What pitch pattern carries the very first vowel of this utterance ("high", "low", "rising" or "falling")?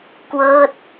falling